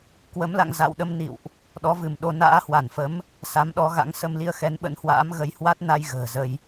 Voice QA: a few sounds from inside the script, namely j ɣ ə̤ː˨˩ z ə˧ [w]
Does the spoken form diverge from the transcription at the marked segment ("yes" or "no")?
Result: yes